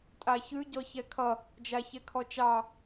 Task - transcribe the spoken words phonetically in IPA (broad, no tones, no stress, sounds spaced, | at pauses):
tʼ a ç ʉ ɟ ɔ ç ɛ kʰ ʌ | d͡ʒ a ç ɛ kʰ ɔ t͡ʃ ɑ